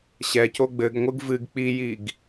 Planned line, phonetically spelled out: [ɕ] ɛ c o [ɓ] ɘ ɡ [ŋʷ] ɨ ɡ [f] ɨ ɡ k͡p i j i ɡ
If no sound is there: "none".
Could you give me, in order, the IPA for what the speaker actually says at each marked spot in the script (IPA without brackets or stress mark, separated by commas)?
ɕ, ɡ͡b, ŋʷ, v